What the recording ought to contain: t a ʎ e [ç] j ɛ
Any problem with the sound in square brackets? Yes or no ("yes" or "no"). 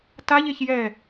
no